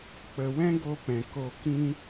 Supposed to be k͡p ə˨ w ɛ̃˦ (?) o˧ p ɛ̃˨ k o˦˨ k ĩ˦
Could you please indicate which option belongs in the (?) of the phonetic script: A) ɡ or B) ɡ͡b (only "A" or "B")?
A